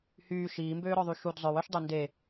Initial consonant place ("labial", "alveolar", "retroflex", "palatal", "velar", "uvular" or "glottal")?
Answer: glottal